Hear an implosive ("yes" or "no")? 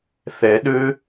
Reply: yes